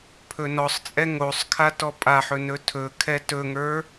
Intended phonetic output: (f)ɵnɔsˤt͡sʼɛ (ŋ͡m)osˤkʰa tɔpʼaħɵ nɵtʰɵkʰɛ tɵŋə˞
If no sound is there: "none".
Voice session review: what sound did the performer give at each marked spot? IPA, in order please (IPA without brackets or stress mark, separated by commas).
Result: pʰ, ŋ